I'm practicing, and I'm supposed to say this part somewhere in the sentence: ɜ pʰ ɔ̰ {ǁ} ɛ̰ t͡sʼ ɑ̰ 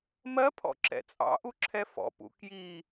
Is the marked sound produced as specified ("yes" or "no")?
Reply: yes